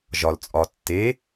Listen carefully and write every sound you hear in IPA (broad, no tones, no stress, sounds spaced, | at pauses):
ʒ ɒ l t͡sʼ ɒ tː e